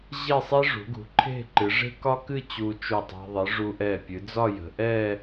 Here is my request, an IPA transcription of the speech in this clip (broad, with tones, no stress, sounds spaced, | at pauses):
ʑ e˥˧ sˤ e˥ ʐ ṳ˩˧ ɡ ṳ˩˧ ǃʰ e̤˥˧ ǃ ɨ˩˧ ʐ e̤˥ k ɒ˥ k ɨ˥˧ t͡ɕ u˧ t͡ʃ u˧˩ tˤ e̤˧ ðˤ ɨ˩˧ ʐ u˧ ʔ ɛ˧˩ pʲ ɨ˩˧ d͡z ɒ˥˧ j ə̤˩˧ ʔ ɛ˥˧